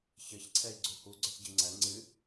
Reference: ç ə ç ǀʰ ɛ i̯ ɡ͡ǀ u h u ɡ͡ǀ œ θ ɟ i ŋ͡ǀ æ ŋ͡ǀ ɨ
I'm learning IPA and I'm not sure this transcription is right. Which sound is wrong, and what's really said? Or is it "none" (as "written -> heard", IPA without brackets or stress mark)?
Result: none